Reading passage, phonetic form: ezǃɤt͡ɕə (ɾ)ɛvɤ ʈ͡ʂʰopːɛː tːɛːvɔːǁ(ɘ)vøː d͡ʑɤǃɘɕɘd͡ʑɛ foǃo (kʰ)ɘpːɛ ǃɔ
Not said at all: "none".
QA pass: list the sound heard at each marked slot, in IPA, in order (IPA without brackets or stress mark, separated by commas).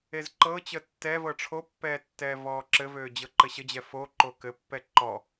tː, ɘ, k